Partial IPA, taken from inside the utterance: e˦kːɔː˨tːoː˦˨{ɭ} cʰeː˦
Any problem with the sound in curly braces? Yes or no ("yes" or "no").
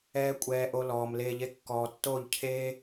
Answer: yes